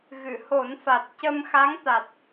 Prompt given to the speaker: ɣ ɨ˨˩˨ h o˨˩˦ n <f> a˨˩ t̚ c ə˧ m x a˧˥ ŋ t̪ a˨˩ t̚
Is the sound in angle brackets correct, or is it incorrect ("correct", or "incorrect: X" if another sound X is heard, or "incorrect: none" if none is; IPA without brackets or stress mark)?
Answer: correct